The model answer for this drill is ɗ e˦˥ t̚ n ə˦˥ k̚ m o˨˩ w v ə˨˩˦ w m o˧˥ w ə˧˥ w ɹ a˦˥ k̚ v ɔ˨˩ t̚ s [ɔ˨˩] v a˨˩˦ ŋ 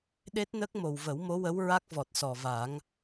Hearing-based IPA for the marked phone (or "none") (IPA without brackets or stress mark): ɔ˨˩